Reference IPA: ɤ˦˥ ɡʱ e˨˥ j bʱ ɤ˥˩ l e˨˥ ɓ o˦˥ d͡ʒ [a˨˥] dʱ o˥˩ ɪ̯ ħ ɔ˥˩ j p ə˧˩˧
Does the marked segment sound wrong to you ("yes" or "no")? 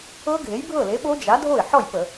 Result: no